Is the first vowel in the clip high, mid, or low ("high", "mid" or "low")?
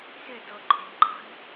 high